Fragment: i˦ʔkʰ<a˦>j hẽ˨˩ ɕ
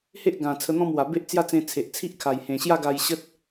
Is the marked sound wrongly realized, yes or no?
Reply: yes